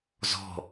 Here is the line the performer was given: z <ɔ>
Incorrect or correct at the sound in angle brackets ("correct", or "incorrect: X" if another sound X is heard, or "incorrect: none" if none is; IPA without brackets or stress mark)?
incorrect: ɔ̤